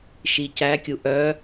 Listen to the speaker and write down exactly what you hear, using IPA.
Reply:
ʃ i c æ kʲ u ʔ œ

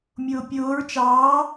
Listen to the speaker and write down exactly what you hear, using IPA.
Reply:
mʲ ʊː pʲ ʊː ɹ t͡ʃ ɑː

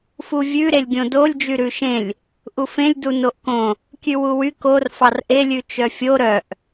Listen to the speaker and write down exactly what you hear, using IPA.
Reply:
f u vʲ ʉ ɾ e lʲ ɡʲ õ d o lʲ d͡ʒ y ɾ ʉ ʃ ẽ lʲ | ʔ u f ẽ lʲ d u n o ʔ k õ | kʲ ʉ w u w y k o r f ɑ r ʔ e lʲ ʉ t͡ʃ œ fʲ o ɾ œ ʔ

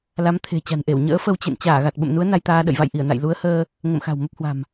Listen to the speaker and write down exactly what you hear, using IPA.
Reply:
l a˨˦ m t̪ʰ e̤˨˩ t͡ɕ a̤˨˩ n ʔ e˧˩ w ɲ ə̰ː˧˥ f ə˧ w t͡ɕ ḛ˧˨ n t͡ɕ aː˧˩ ɣ a˨˩ t̚ ɓ ə̰˧˨ m n u˨˦ ə̯ n a˧ j t̪ aː˧ ɗ ə̰˧˨ j v a̰˧˨ j ʔ i˧˩ ə̯ n a̰˧˨ j l u˨˦ ə̯ h əː˧ | ŋ ə̰˧˨ m x a̤˨˩ w m ə˦˥ p̚ h w a̤˨˩ m

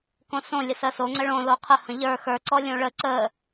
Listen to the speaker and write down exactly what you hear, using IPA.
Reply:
k õ s õ lʲ ə s ɜ s o ŋ͡ǀ ə ɭ õ l o qʰ ə h ə̃ ʎ ə˞ x ə˞ ǀ ɔ lʲ õ ɭ ə ǀ ə

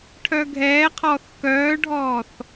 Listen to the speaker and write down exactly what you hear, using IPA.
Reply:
ʈʰ œ ɡʱ ɛː qʰ ɔː θ k œː ɖʱ ɔː θ

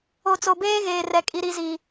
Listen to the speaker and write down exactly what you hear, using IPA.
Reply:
o˨ t͡s o˨ b eː˦ ɣ eː˨ r ɛ˨ kʼ i˨ ɾ i˨ z i˨

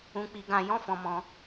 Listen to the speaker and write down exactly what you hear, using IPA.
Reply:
ũ˧ k͡p i˧ ɡ ã˧ j ɔ̃˦ f ɔ̃˧ m ɔ̃˧

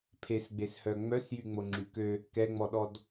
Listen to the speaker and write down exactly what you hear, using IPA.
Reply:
pʰ e s ɡ͡b e s h œ ŋ͡m œ s j y ŋ͡m o ŋ͡ǁ y k ø | k ɛ ŋ͡m ɔ ɗ ɔ d

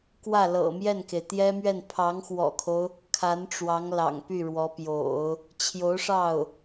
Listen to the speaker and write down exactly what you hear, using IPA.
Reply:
k w ä˥˩ l ɤ̰˨˩ m j ɛ˥˩ n k e˩ ɪ̯ t̪ j ɛ˥ m ɥ ɛ˥˩ n pʰ ɑ˧˥ ŋ x w ɔ̰˨˩ kʰ o˦ ʊ̯ | kʰ a˧˥ n ʈ͡ʂ w ɑ˧˥ ŋ l ɑ̰˨˩ ŋ p y˥˩ ɻ w ɔ˧˥ p j o̰˨˩˦ ʊ̯ | t͡ɕʰ j o˧˥ ʊ̯ ʂ ɑ˥˩ ʊ̯

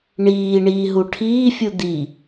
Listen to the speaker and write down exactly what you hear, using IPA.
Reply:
ɳ iː ɳ iː ɦ u ʈʰ iː fʲ u d̪ i

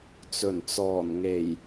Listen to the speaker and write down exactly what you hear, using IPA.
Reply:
t͡s ɵ˨˩ n t͡s ɔː˨˩ n ŋ e˨˩ j

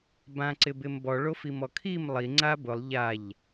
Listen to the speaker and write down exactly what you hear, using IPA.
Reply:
b ã ǀ ɪ b ɪ m b ɔ ɭ o f i m ɔ kʰ i m lˠ i ŋ͡ǀ a b ʊ lˠ ʎ a ʎ

